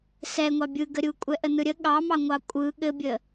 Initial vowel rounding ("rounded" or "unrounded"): unrounded